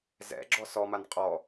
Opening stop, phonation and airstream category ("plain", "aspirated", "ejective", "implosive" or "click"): click